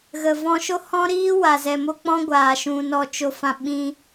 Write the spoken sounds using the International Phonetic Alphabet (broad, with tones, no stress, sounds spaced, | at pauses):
ɣ ə˨ v ɔ̃˧ ʃ o˦ h ɔ̃˦ ɾ iː˦ w a˨ z ɛ˨ m o˦ k͡p ɔ̃˦ ɡʷ aː˨ ʃ ũ˨ n ɔ˧ t͡ʃ o˧ f ã˧ ɓ ĩ˧